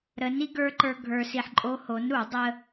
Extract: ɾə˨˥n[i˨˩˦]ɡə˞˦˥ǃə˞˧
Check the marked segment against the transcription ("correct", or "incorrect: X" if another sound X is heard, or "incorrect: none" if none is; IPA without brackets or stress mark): incorrect: i˦˥